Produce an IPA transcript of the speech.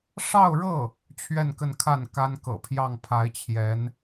ʂ ɑ˥˧ ʊ̯ ɻ ɤ˥˩ | t͡ɕʰ ɥ ɛ˥˧ n k ə˥˧ n kʰ a˥˩ n k a˥ n k ɤ̰˨˩ pʰ j ɑ˥˩ ŋ pʰ a˧˥ ɪ̯ t͡ɕʰ j ɛ˧˥ n

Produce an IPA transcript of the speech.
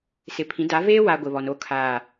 s ɪ˨ pʰ ĩ˨˦ d a˨˦ v eː˦ w a˨ ɡʷ ɪ˨ β ɔ˨ n o˦˨ kʰ aː˨

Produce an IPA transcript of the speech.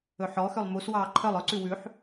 ɵ ħ ɔ x ø lˠ m u s w ɑː ǃʰ œ lˠ œ ǀ ʉ w ʉ ħ

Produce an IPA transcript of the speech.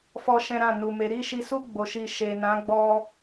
f ɔ˦ ʃ ɛ̃˦ ɾ ã˦˨ n u˨ m e˨˦ ɾ i˦˨ ʃ i˧ s u˦ ɡ͡b o˧ ʃ i˧ ʃ e˨ n ã˨˦ ɡ͡b ɔ˧

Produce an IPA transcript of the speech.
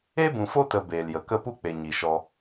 e˦ b ũ˨ f o˦ t ə˧ b eː˨ l j ə˨ k ə˦˨ p u˦ k͡p e˨ ɲ i˨ ʃ ɔ˧

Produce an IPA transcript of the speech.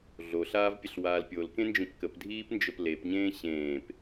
ɮ o ɬ aː v pʲ ə ɬ w aː l pʲ o l k ẽ n d͡ʒ ĩ p k ə p dʱ iː p n d͡ʒ ə p l e p ɲ ẽː ɕ ẽː p

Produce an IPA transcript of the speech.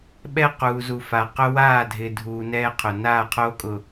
ɓ ɛ˦ q uː˨ z u˨ f a˨ q ʊ˦ w aː˦˨ dʱ ɪ˨ dʱ uː˨ n ɛː˦ qʰ ʊ˨ n aː˦˨ qʰ oː˦ kʼ ʊ˨

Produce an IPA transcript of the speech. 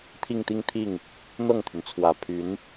t̪ʰ i˥˧ ŋ t̪ i˥˧ ŋ t̪ʰ i˥˩ ŋ | n̪ ɤ˥˩ ŋ t̪ʰ y˩ n t͡sʰ w ä˨˩ pʰ y˧˥ n

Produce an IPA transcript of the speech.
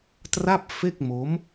t r a˥˩ p̚ f e˥˩ k̚ m o˦˥ m

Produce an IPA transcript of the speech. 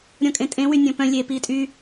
ɾʲ ɔ̃ kʼ ẽ tʼ ẽ w y nʲ ɔ̃ p œ̃ lʲ e p iː tʼ y

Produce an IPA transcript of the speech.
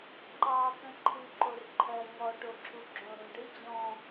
ǃ ɑ t̪ ə̃ ǃʰ ɨ ǃ o r ǃʰ ɜ ŋ ɔ ʈ o ǁʰ u ɡ͡ǁ õ ɾ ũ ɖ ɨ d͡ʑ ɔ̃

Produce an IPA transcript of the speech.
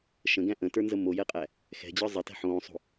ʃ ə̃ ɡ æ̃ ʔ ə̃ t ə˞ n z ə m o j ɛ qʼ æ | x ɛ̤ d͡ʑ ə˞ zˤ ə t ɛ̤ ħ õː sˤ o̤

